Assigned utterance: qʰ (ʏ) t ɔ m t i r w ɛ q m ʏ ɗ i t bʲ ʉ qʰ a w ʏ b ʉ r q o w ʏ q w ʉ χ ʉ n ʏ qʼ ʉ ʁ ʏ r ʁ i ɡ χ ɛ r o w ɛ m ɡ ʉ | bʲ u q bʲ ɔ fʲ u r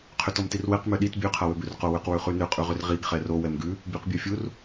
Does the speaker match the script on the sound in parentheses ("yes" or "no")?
yes